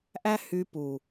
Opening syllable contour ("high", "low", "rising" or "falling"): high